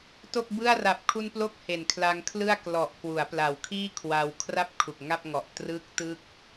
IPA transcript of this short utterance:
t o˥˩ k̚ b ɯ˥˩ a̯ r a˨˩ p̚ kʰ u˧ n p l o˦˥ k̚ h e˨˩ n kʰ l a˧ ŋ kʰ l ɯ˥˩ a̯ k l ɔ˨˩ ʔ k w u˩˦ a̯ p l a˨˩ w kʰ iː˥˩ kʰ w a˧ w kʰ r a˥˩ p̚ kʰ u˨˩ k̚ ŋ a˥˩ p̚ ŋ ɔ˨˩ ʔ t r ɯ˦˥ k̚ t ɯ˥˩ k̚

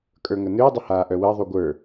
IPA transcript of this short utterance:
kʼ ə˞ ŋ ə n ʏː dˤ ə h aː ʔ œ w əː ðˤ u ɡʷ ə˞

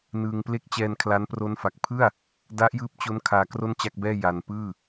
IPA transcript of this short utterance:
n ɯː˧ ŋ p l e˥˩ k̚ t͡ɕ ɛː˧ n kʰ l a˦˥ n p r o˦˥ n f a˨˩ k̚ pʰ ɯ˥˩ a̯ | d a˦˥ ʔ j ɯː˦˥ p̚ t͡ɕ o˦˥ n kʰ aː˧ k r o˥˩ n t͡ɕ a˥˩ k̚ b ɛː˥˩ j a˧ n p ɯː˥˩

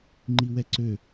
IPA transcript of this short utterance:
ŋ͡ǃ i w ɛ ǀ ø

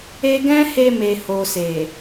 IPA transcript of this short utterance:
e˦ ɡ ɛ̃˦ h e˧ m e˨ h o˨ s e˨

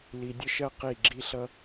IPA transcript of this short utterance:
l i˧ dʲ ə˦ ʃ ɜ˦ q i˦˨ ɡ͡ǁ i˦ ɬ ʌ˦

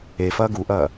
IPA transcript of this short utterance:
e f ɐː ɡ u ʔ ɐː

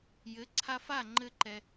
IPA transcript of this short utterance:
j ɘ˨˦ ǀʰ a˧ f a˦˨ ŋ͡ǃ ɘ˦ ǃ ɛ˧

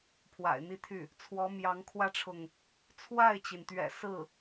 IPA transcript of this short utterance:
pʰ w a̰˨˩ ɪ̯ n̪ i˥˧ t̪ʰ y˥˩ | t͡sʰ w ɔ˧˥ m j ɑ˧˥ ŋ kʰ w ä˥ ʈ͡ʂʰ ʊ˨ ŋ | t͡sʰ w a˥˩ ɪ̯ t͡ɕ i˩ n t̪ ɥ ɛ̰˨˩ s ɹ̩˥˩

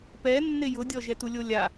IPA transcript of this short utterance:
p ɛ nː ɪ j ʊ dʲ ɔ ʒ ɛ t u lʲ o lʲ a

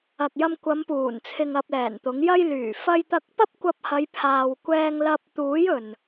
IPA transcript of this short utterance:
ɐ˨ k̚ j ɐ˧ m kʷ ɐ˨˧ m p uː˨˩ n t͡sʰ ɪ˧ ŋ ɐ˧ p̚ l ɛː˨˩ n t̪ ʊ˨˥ ŋ j ɐ˧ j l yː˨˩ f ɐ˧ j t̪ ɐ˧ k̚ p ɐ˥ p̚ kʷ ɐ˧ p̚ h ɐ˨˧ j pʰ aː˨ w kʷ ɛː˧ ŋ l ɐ˧ p̚ t̪ uː˨˥ j ɵ˨ n

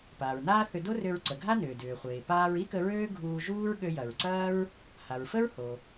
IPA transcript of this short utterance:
p aː˩ ɹ n aː˥ θ ʏ˧ d o˥ r ʏ˧ ɹ ǀ ə˩ ɡʱ a˥ n ʏː˩ d ʏː˩ χʷ eː˩ p aː˧ ɹ i˥ k ə˧ ɹ øː˥ ɡʱ uː˧ ʒ uː˥ ɹ ɠ ø˧ j ɐ˩ ɹ ǀ ɐː˥ ɹ | h a˩ ɹ f ə˥ ɹ h o˩

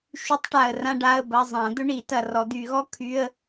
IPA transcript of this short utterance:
ʃ y˧˥ tˤ ʈ a˨ ə̯ r ã˥ ɖ a˧˥˧ ə̯ b ɐ˧˥˧ zˤ ã˨˩˦ d̪ ɵ˥ ɳ i˨˩˦ t ɐ˨ r ɔ˨˩˦ d̪ y˨˩˦ ɣ ɔ˥ kʰ y˧˥˧ ə̯

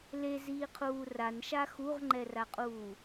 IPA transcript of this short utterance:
l e z iː qʰ uː r a n ʃ a x u ʁ ŋ͡ǃ ɛ r a qʼ uː

